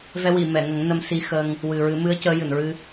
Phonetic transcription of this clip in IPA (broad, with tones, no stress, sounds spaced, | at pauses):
v ɛ˧ w i˨˩˨ m ɛ˨˩˨ ŋ ə˨˩˦ ŋ n ə˧ m s i˧ x ə˧ ŋ | w ɨ˨˩ ɹ ɨ˨˩˦ m ɨ˧˥ ə̯ c əː˧˥ j ɨ˨˩˨ n ɹ ɨ˧